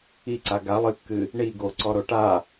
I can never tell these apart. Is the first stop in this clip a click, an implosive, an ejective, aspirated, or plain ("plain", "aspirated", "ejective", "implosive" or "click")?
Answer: click